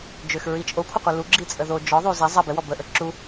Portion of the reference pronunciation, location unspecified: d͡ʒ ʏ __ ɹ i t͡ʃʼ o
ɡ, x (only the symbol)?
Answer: x